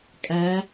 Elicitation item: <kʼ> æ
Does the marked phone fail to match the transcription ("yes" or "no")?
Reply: no